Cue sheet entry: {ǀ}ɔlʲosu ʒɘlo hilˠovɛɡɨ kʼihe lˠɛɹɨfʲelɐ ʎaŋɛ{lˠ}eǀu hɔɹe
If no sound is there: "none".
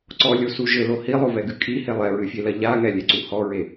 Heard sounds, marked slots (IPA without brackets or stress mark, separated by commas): ǀ, lʲ